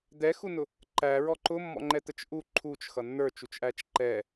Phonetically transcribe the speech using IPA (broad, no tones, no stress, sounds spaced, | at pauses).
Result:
d̪ ɛ x u n ʊ | ǃ æ ɹ ɔ ǃ ʊ mː ɔ̰ ŋ͡ǃ ɛ t̪ ə t͡ʃ ʔ u ǃʰ u t͡ʃ x ʌ nː ə˞ t͡ʃ u t͡ʃ ʔ æ t͡ʃ ǃ ɛ